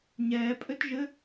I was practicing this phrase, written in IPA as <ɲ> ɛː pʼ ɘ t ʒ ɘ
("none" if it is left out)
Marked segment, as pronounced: ɲ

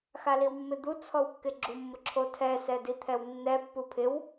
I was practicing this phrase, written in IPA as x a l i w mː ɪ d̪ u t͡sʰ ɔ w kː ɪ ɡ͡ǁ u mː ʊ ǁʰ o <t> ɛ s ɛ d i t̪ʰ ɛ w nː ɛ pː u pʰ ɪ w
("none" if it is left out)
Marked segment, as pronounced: tʰ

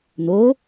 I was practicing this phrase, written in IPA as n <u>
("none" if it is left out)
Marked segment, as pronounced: o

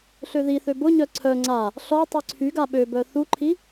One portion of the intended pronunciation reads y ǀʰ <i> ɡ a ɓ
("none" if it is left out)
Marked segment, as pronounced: y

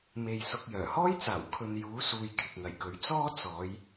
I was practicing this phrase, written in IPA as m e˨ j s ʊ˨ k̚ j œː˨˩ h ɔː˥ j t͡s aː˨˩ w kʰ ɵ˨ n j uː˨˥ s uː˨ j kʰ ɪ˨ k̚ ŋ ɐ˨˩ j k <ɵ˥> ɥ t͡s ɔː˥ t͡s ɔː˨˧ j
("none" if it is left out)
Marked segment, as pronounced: ɵ˨˥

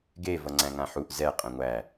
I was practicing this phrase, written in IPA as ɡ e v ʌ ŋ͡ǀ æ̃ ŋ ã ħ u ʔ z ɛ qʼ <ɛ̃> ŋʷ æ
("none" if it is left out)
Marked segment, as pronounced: ɛ̃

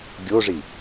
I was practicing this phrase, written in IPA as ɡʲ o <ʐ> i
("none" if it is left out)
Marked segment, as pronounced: ʐ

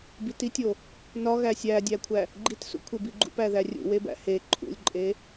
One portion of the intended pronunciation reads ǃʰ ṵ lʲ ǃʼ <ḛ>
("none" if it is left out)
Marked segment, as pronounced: e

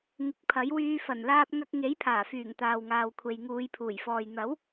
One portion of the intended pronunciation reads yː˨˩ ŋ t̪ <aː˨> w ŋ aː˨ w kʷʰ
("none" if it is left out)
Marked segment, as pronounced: aː˨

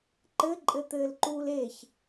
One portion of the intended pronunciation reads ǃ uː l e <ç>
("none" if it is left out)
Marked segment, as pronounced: ç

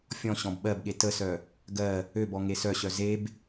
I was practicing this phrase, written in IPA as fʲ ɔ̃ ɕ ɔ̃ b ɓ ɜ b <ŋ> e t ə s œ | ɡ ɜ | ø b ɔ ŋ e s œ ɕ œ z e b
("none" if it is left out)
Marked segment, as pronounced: ɠ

